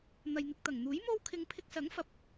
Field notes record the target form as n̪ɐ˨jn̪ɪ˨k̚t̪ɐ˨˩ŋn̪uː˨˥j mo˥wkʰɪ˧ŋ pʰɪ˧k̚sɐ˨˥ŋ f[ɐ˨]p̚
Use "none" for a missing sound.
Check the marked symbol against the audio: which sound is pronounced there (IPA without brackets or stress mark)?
ɐ˨˥